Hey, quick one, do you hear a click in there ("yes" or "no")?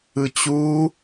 no